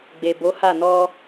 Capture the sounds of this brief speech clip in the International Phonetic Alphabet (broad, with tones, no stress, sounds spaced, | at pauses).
ɡ͡b e˨ b o˨˦ h a˦˨ n ɔ˧